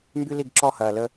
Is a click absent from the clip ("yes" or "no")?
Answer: no